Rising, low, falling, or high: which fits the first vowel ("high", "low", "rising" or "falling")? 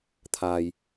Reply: low